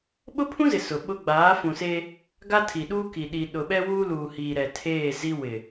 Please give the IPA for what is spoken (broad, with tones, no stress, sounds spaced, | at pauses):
ɓ ʊ˦ pʰ ũ˦ z ɪ˨ s ʊ˨ ɓ ʊ˦ ɡ͡b aː˨˦ f ũ˨ s eː˦ | ɡ a˦ tʰ i˨ ɗ uː˦ k i˨ ɗ i˨ ɗ ʊ˨ ɓ ɛ˦ w uː˦ l uː˨ h iː˨ ɾ ɛ˨ tʰ eː˦˨ z i˦ w ɪ˨